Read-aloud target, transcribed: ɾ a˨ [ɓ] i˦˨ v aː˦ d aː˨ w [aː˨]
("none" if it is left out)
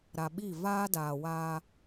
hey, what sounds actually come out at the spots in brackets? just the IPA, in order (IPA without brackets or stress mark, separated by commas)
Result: ɓ, aː˦